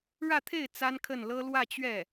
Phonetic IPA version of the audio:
ɻä˥˧t̪ʰe˥˩ɪ̯ t͡sa˥nkʰə˥˩n lɤ˥ lwä˥˧t͡ɕɥɛ˥˩

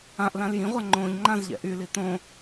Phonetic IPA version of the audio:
ãʔlãl jĩʁʷa ŋ͡ǃõːʎŋ͡ǃãzʎɛ̰ ʔyli tõ

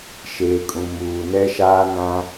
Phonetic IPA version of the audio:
ʃeː˨kʼũ˨ muː˨ nɛ˦ʃaː˦nã˦

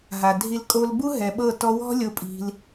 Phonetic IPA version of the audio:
ɦa˨dʱi˧l kʼo˧l bu˦ɦɛ˨ ɓɤ˦˨ tɔ˧wɔ̤˦lʲo˧ pʼi̤˧l

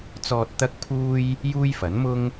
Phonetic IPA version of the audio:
t͡sɔː˧t̚ t̪ɐ˥k̚pʰuː˥j | juː˥jfɐ˨˥nmʊ˥ŋ

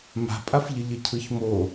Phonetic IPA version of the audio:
ma̤pʼafʎə ʎəcʰɯçmo

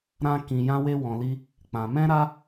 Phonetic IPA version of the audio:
ɾã˦ kĩ˧ jã˦we˦ wɔ̃˧li˦ | k͡pã˧ mɛ̃˦ɾa˦

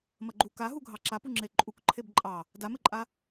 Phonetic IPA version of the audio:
mɐɡ͡ǃu kaɦu ɡʱɑǁapuŋ͡ǁe ǃʼukǃʰeb ǃʼɑ | damɘǃʼa

